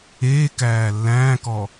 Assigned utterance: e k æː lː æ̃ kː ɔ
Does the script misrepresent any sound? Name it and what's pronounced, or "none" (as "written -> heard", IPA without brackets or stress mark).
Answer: kː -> k